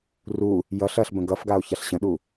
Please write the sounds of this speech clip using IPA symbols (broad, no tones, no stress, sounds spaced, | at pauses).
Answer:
r u | j ʌ ɬ ɐ ɬ b ə̃ ɡ ʌ f ɡ a o̯ ç a ɬ ɕ ə̃ ɗ u